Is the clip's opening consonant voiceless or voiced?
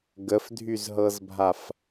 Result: voiced